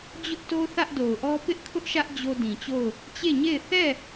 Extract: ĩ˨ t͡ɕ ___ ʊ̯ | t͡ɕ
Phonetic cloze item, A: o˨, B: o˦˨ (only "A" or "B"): B